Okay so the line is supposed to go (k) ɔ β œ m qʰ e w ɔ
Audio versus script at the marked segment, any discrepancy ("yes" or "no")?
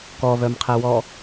no